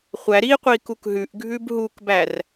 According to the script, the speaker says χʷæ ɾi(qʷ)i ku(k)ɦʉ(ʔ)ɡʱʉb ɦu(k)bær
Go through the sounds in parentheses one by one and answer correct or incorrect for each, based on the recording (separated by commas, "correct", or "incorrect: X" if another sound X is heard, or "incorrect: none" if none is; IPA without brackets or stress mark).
correct, correct, correct, correct